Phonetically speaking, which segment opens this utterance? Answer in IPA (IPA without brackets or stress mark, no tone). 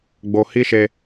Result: ɡ͡b